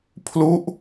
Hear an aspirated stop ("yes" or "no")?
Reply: yes